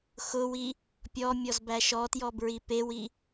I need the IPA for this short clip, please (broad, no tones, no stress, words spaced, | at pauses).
xʊwi | pʲɔmʲɔz bæʃɔtjɔ bɹipewi